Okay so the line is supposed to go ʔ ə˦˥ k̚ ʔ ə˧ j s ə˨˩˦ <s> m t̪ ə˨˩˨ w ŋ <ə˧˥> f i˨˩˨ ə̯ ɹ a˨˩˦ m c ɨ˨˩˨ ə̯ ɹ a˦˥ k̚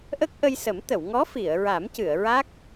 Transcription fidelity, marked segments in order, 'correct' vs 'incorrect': incorrect: none, incorrect: ɔ˧˥

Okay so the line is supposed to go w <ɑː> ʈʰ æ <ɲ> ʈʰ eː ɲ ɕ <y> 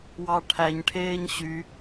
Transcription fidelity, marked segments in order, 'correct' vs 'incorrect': incorrect: ɑ, correct, correct

